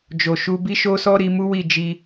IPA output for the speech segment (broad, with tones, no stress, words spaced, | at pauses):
d͡ʒo˨ ʃu˧bi˦ ʃo˦sɔ˦ ɾi˧mu˦wi˦˨ d͡ʒi˧